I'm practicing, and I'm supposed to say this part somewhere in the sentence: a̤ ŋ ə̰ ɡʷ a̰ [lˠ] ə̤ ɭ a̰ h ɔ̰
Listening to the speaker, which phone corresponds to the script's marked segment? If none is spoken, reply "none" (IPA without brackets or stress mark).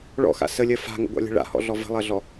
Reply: lʲ